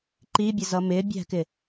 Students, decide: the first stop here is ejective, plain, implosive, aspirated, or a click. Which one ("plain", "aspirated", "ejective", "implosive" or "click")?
click